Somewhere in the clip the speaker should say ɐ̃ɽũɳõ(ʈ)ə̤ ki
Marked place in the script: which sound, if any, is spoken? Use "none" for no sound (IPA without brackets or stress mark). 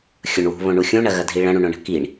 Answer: ɳ